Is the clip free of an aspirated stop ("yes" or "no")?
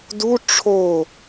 no